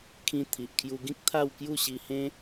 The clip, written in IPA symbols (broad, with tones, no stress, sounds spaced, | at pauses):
kʰ ĩ˧ t̪ʰ i˨ ʔ kʰ j u˧ ɡ ĩ˦ k̚ t̪ʰ a˥˧ w k j u˥˧ ɕ i˧ h ẽ˦